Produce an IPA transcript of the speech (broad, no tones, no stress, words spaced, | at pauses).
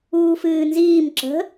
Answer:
uːfɨːnziːm ǁə̤